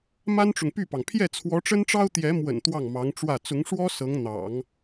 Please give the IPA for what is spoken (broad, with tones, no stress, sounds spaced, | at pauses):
m a˥ n ʈ͡ʂ ʊ˨ ŋ p y˥˩ p ɑ˩ ŋ pʰ j ɛ˥˩ t͡sʰ w ɔ˧˥ ʈ͡ʂ ə˥ n ʈ͡ʂ ɑ˥ ʊ̯ t̪ j ɛ˧˥ m w ə̰˨˩ n t̪ w ɑ˥˩ ŋ m ɑ˧˥ ŋ ʈ͡ʂ w ä˥˩ t͡s ʊ˧˥ ŋ ʂ w ɔ˥ s ɤ˧˥ ŋ n̪ ɑ̰˨˩˦ ŋ